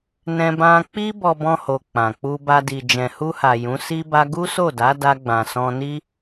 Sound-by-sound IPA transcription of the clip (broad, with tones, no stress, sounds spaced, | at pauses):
n ɛ̃˧ b ã˧ k͡p i˦ b ɔ˧ b ɔ̃˧ h o˨ k͡p ã˨ k͡p u˧ b a˧ d i˨ d͡ʒ ɛ̃˨ h u˧ h a˨ j ũ˨˦ s i˦ b a˦ ɡ u˦ s o˦˨ d a˨˦ d a˧ ɡ͡b ã˨ s ɔ̃˧ n i˦